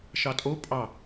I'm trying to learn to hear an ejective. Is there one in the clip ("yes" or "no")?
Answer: yes